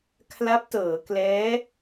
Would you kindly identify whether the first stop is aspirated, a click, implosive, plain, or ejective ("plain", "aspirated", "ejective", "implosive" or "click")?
aspirated